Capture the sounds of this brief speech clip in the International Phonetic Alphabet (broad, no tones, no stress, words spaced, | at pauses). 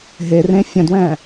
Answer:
ɦe rẽfʲə̃dwɛ̃